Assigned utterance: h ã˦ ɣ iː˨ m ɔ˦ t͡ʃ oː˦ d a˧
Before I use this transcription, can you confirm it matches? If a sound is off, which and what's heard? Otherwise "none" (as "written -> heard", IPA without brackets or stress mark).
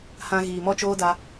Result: none